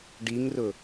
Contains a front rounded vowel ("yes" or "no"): no